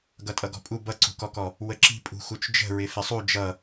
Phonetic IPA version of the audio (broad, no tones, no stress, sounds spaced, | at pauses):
ɡ ʌ tʼ ʌ ɡ ɔ̤ pʼ u b ʌ ǀ ṳ k ɔ k ɔ | w ə ǁ i̤ pʼ ṳ x u t͡ʃ d͡ʒ ə̤ ɹ ɪ f ɪ sˤ u d͡ʒ ʌ